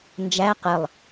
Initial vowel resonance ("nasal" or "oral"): oral